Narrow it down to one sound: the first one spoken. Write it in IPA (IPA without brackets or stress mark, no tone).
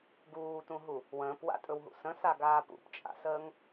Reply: ɡ